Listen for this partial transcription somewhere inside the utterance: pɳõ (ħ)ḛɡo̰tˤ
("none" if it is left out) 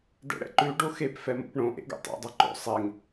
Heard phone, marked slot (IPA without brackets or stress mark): ʔ